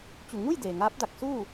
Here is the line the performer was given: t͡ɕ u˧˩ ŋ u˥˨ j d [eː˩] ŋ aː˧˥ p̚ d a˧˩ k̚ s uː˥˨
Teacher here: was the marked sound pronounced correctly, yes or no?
yes